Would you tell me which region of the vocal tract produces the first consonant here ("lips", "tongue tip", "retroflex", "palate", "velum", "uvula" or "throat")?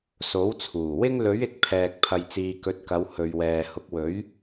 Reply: tongue tip